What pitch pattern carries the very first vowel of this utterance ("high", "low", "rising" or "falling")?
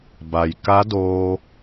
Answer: low